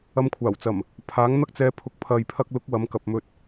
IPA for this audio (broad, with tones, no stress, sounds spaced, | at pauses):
ɐ˧ m kʷʰ aː˨˩ w t͡s ɐ˨˩ m | pʰ aː˨˥ ŋ n̪ ɐ˥ k̚ t͡s ɛː˧ pʰ ʊ˨ k̚ pʰ ɐ˨ j pʰ ɐ˧ k̚ l ʊ˨˥ k̚ w ɐ˨˥ m k ɐ˨ p̚ m ɵ˧ t̚